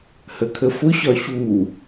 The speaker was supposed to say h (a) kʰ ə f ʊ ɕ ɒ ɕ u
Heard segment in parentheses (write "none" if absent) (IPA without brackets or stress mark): ə